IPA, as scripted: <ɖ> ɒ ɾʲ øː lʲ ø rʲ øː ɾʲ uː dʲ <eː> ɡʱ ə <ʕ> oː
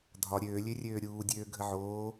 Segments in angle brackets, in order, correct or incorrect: incorrect: dʱ, incorrect: øː, correct

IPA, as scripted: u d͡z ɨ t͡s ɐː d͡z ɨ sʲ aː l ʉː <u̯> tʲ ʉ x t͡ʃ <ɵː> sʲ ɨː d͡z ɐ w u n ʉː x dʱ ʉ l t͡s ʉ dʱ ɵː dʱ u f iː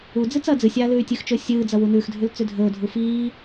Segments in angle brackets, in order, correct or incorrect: incorrect: y̯, correct

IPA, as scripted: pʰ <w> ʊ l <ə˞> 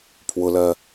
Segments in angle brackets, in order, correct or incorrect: correct, incorrect: ɜ

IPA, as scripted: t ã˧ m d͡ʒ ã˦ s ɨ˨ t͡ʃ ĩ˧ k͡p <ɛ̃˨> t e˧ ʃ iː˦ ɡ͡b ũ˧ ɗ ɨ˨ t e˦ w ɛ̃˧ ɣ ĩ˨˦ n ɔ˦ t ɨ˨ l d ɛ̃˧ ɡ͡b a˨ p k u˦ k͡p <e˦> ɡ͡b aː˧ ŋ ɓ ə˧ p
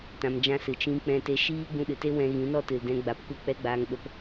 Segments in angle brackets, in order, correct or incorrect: incorrect: ɛ̃˧, incorrect: ɛ˦

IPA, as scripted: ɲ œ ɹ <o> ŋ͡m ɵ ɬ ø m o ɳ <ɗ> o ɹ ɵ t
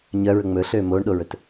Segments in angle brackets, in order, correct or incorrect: incorrect: ɵ, correct

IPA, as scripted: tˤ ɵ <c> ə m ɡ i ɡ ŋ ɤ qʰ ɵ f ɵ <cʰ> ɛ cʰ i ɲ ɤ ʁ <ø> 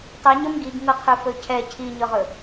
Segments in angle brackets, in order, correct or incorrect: incorrect: ɲ, correct, incorrect: ɵ

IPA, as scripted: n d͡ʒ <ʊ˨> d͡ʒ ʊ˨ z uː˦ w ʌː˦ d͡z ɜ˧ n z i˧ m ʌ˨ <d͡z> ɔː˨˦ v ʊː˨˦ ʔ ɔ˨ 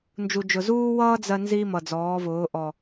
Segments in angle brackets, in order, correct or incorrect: incorrect: u˨, correct

